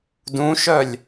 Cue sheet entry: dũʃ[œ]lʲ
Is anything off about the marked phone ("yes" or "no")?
no